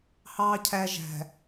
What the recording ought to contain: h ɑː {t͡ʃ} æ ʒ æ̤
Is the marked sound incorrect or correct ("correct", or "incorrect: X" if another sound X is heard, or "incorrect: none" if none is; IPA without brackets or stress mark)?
incorrect: cʰ